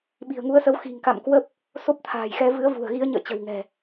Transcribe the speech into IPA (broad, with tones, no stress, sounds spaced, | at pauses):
ɓ i̤˨˩ ə̯ ŋ u˨˦ ə̯ s ə˨˦ w x i̤˨˩ ŋ k a̰˧˨ m k w ə˦˥ p̚ | s o˦˥ p̚ t̪ʰ a̤ː˨˩ j x ɛ˧ v ɨ˨˦ ə̯ v ṳ˨˩ ə̯ ɣ i˨˦ ə̯ ɲ ə̰ː˧˨ t͡ɕ ə̤˨˩ w ŋ ɛ̤˨˩